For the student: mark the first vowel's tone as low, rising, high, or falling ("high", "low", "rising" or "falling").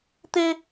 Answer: high